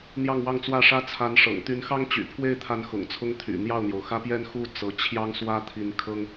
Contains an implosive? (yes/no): no